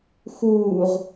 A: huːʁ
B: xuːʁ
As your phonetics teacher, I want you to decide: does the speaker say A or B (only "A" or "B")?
B